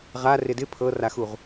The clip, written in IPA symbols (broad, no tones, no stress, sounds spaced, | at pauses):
ʁ a r ɪ d ɪ pʰ ɤ r a x u ʁ